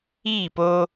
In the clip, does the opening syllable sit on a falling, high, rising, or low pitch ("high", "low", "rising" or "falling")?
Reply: falling